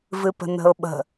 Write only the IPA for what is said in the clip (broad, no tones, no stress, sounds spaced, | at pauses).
v ɨ p ə̤ n ə̤ ʊ̯ ɓ ə̤